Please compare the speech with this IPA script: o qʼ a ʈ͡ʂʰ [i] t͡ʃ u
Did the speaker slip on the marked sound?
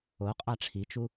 no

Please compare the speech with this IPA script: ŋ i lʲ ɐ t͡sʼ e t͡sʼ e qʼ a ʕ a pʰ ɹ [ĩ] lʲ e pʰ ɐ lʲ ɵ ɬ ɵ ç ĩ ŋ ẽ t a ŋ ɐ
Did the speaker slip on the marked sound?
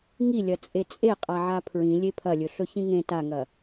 no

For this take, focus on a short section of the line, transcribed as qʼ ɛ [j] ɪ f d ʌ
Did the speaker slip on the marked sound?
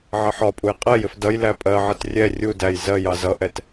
no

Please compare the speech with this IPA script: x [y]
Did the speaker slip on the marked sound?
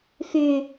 no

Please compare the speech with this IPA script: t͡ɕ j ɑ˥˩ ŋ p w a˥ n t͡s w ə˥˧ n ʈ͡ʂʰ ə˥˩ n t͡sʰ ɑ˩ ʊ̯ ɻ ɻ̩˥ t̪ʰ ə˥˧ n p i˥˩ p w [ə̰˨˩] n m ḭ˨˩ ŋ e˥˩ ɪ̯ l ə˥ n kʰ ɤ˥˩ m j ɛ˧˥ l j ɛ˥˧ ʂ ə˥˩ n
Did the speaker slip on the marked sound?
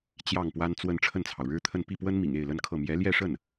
yes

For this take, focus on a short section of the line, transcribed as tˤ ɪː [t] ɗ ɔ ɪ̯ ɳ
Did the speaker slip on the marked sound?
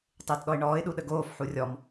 no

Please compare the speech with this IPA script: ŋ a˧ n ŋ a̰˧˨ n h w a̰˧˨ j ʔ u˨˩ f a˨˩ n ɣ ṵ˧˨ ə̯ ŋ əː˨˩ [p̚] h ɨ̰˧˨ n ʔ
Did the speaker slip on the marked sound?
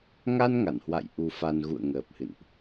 no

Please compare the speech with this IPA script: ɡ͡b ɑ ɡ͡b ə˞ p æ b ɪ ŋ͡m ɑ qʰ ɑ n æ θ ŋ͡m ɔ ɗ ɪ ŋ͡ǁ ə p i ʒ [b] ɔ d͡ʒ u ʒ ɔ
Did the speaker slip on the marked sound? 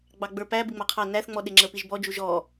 no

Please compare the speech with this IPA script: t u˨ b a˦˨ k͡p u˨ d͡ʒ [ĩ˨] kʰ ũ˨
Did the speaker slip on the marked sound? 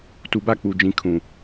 no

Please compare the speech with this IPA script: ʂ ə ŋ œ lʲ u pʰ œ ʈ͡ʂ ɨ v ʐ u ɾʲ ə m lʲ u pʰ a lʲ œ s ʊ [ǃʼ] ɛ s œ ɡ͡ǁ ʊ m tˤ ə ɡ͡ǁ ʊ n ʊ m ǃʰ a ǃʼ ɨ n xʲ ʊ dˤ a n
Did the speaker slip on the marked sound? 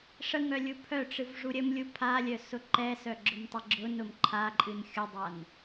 yes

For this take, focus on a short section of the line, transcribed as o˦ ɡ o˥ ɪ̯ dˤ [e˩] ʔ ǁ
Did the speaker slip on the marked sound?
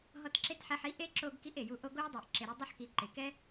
yes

